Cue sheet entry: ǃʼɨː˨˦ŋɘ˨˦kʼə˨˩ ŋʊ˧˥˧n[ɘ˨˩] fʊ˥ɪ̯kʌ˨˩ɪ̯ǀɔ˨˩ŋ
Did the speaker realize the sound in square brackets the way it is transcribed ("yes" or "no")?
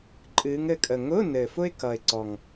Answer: yes